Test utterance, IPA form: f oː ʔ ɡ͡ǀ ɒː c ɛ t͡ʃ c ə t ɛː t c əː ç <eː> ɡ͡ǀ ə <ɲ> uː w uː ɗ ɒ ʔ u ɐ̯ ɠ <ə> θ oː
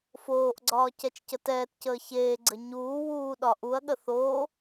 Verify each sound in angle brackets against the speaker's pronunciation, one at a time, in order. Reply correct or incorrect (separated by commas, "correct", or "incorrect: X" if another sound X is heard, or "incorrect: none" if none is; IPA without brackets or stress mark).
correct, correct, correct